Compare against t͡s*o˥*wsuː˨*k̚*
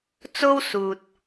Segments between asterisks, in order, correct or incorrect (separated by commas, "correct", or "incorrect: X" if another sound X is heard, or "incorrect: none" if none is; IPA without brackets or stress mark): correct, incorrect: t̚